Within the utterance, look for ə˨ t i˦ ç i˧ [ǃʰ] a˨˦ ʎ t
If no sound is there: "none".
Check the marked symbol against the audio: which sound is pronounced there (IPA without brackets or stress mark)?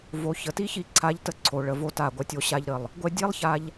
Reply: ǀʰ